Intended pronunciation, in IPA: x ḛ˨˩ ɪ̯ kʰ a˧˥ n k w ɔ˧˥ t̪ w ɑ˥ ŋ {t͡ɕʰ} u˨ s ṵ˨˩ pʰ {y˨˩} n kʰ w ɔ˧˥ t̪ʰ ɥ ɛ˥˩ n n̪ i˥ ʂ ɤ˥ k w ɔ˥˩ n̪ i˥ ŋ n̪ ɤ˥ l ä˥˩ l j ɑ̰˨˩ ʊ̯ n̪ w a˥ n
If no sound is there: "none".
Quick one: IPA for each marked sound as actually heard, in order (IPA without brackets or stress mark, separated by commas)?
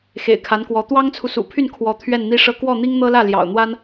t͡sʰ, y˥˩